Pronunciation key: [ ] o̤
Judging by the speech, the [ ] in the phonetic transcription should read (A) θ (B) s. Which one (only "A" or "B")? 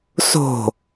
B